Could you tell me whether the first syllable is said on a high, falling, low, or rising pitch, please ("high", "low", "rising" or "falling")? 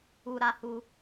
low